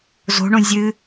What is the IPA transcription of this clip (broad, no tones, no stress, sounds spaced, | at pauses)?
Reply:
z o̤ ɳ õ zʲ ɨ